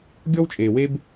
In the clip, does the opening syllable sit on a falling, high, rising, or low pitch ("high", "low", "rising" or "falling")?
high